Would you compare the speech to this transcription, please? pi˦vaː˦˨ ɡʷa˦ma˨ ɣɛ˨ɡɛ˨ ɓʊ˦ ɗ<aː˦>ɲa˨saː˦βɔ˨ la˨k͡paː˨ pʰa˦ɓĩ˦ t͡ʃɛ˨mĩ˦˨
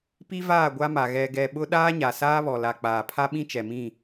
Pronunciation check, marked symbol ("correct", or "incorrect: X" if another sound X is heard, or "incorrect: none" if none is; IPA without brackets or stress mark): correct